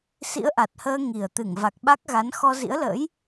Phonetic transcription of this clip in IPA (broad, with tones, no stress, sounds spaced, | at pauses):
s ḭ˧˥ ə̯ ʔ a˨˩ t̚ h əː˧ ŋ i˨˩ ə̯ t̪ ɨ˧˩ ŋ v a˨˩ k̚ ɓ a˦˥ k̚ ɣ a˨˦ n x ɔ˧ z ḭ˧˥ ə̯ l ə̰ː˧˥ j